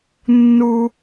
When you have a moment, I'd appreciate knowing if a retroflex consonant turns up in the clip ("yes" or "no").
no